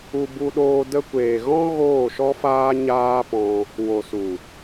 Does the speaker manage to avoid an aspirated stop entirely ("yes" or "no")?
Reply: yes